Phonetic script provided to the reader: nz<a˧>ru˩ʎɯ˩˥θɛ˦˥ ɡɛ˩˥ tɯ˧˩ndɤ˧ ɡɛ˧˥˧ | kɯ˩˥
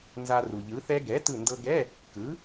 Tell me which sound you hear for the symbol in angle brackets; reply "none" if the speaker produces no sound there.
a˧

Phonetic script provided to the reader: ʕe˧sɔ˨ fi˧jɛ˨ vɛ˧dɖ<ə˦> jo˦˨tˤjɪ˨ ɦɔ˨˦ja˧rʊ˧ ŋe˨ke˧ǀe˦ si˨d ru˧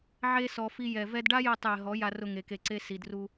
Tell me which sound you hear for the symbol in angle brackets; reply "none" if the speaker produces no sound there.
a˦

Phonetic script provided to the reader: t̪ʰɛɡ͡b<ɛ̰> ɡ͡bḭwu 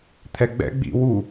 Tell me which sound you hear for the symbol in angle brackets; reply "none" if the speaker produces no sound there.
ɛ̰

